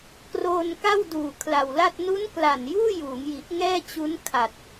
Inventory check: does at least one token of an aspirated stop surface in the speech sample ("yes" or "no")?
yes